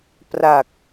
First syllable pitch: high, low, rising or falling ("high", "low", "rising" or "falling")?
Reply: low